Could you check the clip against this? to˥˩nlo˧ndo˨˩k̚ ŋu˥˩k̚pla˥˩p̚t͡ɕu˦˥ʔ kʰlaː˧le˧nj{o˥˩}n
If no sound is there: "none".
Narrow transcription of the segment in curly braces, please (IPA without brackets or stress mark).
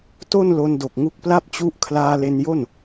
o˥˩